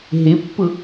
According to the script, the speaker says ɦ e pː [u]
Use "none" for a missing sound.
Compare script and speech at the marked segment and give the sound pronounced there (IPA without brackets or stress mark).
ʊ